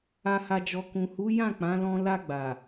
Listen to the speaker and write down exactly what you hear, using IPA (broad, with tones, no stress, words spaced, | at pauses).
a˨ha˨d͡ʒɔ˨ kũ˨hu˨˦ jã˦˨k͡pã˨˦lɔ̃˧ la˧ɡ͡ba˨